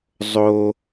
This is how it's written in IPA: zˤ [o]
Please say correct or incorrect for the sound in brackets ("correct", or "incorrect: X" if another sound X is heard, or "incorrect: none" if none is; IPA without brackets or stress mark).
correct